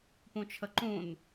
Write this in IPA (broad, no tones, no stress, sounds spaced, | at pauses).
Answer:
p ũ t͡ʃʰ ə ǃ ũ n